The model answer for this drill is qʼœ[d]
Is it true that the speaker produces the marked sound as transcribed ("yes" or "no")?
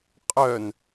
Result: no